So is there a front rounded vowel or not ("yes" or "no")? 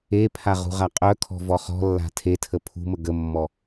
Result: yes